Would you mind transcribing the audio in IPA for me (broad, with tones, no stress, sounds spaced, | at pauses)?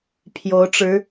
pʰ j o˧˥ ʊ̯ ʈ͡ʂ ɻ̩˧˥